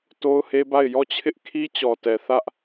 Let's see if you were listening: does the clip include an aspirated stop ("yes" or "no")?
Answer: yes